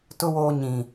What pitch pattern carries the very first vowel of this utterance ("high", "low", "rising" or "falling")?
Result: high